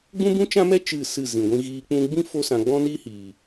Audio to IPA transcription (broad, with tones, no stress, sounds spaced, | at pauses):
ɡ͡b ũ˦ b ũ˦ t͡ʃ ã˦ m ɛ˦ t͡ʃ ɨ˦˨ s ɨ˦˨ z ĩ˨ ɡʷ ĩ˧ ɣ iː˧ k͡p ũ˧ ɡ͡b ĩ˦ f o˦ s ã˧ ɡ͡b ɔ̃˦ n iː˦ h iː˨